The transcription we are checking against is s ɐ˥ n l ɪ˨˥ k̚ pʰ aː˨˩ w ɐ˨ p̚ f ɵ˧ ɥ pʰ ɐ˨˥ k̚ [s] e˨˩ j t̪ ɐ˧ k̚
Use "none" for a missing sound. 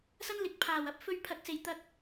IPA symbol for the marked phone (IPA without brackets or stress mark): s